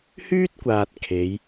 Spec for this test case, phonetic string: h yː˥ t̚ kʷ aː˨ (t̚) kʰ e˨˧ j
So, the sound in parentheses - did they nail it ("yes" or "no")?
yes